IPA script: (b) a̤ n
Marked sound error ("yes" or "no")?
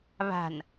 yes